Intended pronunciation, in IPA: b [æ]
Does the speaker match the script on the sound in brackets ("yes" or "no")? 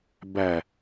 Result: yes